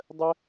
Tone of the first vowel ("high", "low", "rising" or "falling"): high